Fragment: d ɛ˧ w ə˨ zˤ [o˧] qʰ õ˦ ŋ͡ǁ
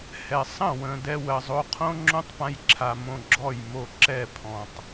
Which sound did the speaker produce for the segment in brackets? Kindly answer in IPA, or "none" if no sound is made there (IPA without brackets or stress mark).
o˧